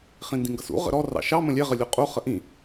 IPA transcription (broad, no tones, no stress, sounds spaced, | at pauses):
χ ĩ n d ĩ ŋ ɡ ʌ s ṵ ʁ ə̰ ɾ ɔ r ɑ̰ ʃ ɑ m ə̃ lʲ ɛ ʁ ə lʲ u qʼ u χ ə ʔ ĩ